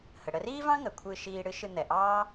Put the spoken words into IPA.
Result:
h ə˩ ɽ ə˧ r iː˥ v ɑ̃˥ ŋ ə˩ kʷʰ ɨ˧ ʃ iː˧ ɽ ɨ˥ ʃ ɨ˧ n̪ ɛ˩ ʔ ɑː˥

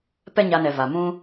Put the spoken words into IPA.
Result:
p ɛ˦ ɲ a˧ n ɛ˨ v a˨ m ũ˧

